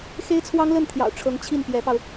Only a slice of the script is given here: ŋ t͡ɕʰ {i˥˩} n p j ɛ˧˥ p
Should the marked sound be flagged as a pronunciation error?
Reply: no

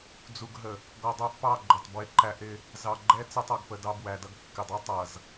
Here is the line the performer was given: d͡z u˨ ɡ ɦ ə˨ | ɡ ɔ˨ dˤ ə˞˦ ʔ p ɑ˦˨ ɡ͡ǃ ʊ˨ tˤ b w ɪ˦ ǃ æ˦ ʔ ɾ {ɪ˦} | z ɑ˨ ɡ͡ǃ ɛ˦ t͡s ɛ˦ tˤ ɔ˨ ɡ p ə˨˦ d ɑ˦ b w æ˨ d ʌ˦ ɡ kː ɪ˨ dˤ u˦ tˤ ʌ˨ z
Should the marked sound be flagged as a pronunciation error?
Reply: no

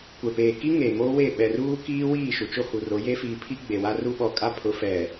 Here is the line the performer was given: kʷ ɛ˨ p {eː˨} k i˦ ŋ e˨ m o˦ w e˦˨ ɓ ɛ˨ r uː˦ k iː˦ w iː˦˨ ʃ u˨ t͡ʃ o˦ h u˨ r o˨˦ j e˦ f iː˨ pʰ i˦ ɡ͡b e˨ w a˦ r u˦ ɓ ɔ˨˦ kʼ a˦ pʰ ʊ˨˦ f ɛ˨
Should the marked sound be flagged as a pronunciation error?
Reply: no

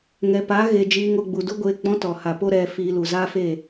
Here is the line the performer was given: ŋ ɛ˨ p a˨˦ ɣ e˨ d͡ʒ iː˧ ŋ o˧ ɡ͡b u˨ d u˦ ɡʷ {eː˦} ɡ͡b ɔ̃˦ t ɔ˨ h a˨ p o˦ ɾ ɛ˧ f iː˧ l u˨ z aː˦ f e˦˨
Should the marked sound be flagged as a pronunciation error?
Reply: yes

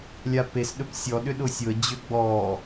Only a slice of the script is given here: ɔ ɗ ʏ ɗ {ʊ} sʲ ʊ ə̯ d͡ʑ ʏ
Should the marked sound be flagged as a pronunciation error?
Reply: no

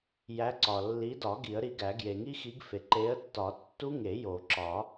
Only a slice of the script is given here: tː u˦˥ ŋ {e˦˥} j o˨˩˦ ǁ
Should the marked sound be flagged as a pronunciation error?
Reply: yes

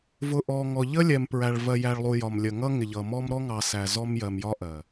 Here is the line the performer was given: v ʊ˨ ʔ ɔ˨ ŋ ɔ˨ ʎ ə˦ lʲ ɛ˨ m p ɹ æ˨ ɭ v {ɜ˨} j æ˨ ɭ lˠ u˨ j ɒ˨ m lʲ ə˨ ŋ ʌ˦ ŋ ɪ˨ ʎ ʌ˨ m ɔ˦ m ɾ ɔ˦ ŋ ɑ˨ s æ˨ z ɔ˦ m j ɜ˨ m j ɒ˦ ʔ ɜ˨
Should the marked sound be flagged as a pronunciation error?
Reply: no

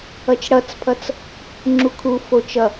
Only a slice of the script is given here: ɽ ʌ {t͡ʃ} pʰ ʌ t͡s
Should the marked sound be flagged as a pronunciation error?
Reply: yes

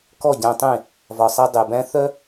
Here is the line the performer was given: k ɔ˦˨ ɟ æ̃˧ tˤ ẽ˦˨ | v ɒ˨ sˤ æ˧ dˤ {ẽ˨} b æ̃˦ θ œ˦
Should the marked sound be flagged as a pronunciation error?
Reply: yes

